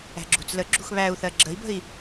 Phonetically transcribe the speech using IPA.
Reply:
æ̤ɡ͡ǁṳt͡slə ɡ͡ǁṳxβæu̯θɜ ɡ͡ǁəi̯bə̤i̯

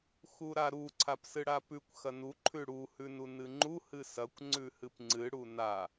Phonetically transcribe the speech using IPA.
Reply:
xuɾaɾu ǀʰapsɨɽapʉkʷ xɐnu ǃʰʉɽu hʉnunɨŋ͡ǃu hɨsɐkʷ ŋ͡ǀʉhɨpŋ͡ǀɨ ɽuna

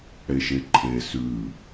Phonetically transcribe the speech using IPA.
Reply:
ɽeʃeǃʰe sʉ

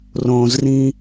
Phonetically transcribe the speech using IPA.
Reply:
rõzrĩ

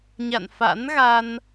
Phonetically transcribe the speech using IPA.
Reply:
ɲa̰˧˨nfa̰˧˥nɣa˧n

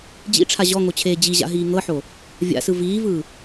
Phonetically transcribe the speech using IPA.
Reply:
d͡ʑḭʈ͡ʂʰa ʑɔŋot͡ɕʰeː d͡ʑiʑa̰ɦiː ŋɤħo | vʲa̰sɯ viːvɯː

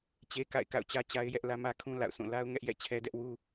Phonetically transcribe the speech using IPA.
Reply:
t͡ɕe˦ka̰˦˨ɪ̯ ka̰˦˨ʊ̯t͡ɕä˦t͡ɕa˦ɪ̯jɛ˦ʔ lä˦mä˦kʰũ˦ la̰˦˨ʊ̯sʰũ˦˨ la˦ʊ̯ŋɛ˦ʔjɛ̰˦˨ t͡ɕʰɛ˦dɛ˦ʔwu˦

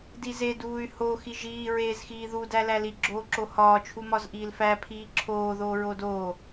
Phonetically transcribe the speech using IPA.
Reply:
dize duːy̯ho xiʒiː ɹeːzxiːðu dælæli ɡ͡ǁoːǁohɒː t͡ʃʰumɒzʔiːlfæ pʰiːǁʰoː ðoːɹodoː

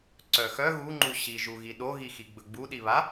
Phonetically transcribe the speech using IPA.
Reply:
ǀœxœ ɣuŋ͡ǃu ɕiʒuɣi ɗoɣixi ɡ͡bɵɡ͡buɗiβa

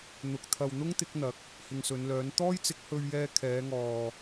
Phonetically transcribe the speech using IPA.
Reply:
n̪ʊ˨k̚ t̪ʰɐ˨wn̪ʊ˥ŋt̪ɪ˨˥k̚ n̪ɐ˨˥k̚ | hɪ˨ŋsɵ˨˧nlœː˨˥n t̪ɔː˥jt͡sɪ˨˥k̚hɵ˧ɥjɛː˧ kʰɛː˨˧ŋɔː˨

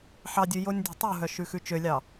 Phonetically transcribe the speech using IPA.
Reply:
ħɑdʲʉ jonʲdʲɔ̤tˤuɦœ ʃʉxʉt͡ʃølʲɑ

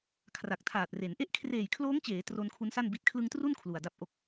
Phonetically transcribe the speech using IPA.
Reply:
kʰra˨˩k̚tʰaː˨˩t̚re˩˦n ʔe˦˥ʔkʰreː˨˩jkʰloː˦˥ŋt͡ɕeː˩˦ tro˧nkʰu˦˥nsa˥˩n bi˨˩t̚kʰlɯ˧ŋtru˥˩n kʰlu˨˩a̯da˥˩p̚ ʔo˨˩k̚

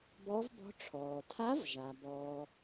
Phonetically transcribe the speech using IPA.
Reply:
bɔ˧˥vbɔ̤˧˥ ʈ͡ʂʰɔː˩tʰa˧˥vʒa˩ bɔː˩

